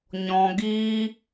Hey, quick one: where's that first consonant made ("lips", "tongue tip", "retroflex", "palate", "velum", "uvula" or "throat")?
palate